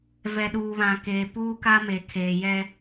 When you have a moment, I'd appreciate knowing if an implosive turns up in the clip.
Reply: yes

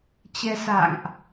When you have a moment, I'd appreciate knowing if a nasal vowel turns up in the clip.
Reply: no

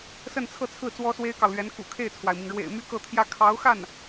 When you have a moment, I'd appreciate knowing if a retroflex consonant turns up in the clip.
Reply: yes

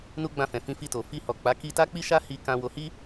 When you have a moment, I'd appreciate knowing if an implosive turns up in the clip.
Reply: no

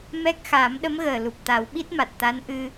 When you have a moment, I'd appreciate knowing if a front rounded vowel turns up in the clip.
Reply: no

